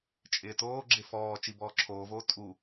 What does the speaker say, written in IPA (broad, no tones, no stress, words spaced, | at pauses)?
t͡ʃʼɪːtoːɡ͡ǁɪ fɔː t͡ʃibɔːǁʰoːvoː tʼu